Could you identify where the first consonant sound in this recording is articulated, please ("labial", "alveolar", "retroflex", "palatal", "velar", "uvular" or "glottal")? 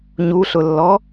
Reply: palatal